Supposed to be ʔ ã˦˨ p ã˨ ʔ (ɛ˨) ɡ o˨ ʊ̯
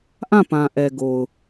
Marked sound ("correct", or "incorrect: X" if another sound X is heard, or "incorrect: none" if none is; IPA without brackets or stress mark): correct